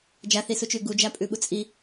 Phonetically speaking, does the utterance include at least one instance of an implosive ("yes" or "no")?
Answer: yes